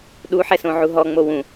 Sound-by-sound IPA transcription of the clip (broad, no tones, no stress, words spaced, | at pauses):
ɗuħɛsõʕu ɦɔŋ͡mo wũ